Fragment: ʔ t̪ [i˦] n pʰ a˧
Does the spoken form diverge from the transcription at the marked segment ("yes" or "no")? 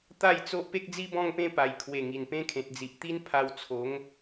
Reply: no